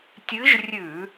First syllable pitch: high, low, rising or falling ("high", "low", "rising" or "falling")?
rising